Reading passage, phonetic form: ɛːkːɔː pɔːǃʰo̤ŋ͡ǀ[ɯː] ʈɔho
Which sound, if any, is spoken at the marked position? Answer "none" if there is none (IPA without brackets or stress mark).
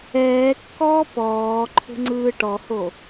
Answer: ɯː